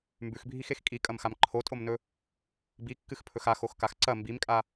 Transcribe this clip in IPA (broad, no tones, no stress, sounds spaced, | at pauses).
m b ʉ x bʱ i x e x kʼ i kʼ ɐ m x a m ǃʰ o tʼ o m n ɵ | b i kː ɨ x pʰ ɵ x a x o x k a x ǀ ɐ m b i m kʼ a